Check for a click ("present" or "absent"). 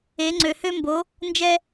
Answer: present